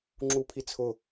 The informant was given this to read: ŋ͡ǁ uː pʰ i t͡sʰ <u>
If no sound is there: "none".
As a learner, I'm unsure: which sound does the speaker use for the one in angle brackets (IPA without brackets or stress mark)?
ʊ